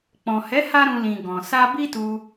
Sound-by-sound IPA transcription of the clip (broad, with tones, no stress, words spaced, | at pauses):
k͡pɔ̃˨ hɛ˨˦ ha˦ɾũ˧ lĩ˨ ɡɔ̃˨ sa˧ bi˦tu˧